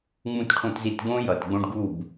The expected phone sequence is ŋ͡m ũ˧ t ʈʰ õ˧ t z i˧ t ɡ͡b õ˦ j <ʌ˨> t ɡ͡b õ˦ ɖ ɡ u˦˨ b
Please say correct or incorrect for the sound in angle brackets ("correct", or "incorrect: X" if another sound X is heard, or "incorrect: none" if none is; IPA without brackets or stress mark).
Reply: correct